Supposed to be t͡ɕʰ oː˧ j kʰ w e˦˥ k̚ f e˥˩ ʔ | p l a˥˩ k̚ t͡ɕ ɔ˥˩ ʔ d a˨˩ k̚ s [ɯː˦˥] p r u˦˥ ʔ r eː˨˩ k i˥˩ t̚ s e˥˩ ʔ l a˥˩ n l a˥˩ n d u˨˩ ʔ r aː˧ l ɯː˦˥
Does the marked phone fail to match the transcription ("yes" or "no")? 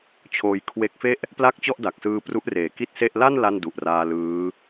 yes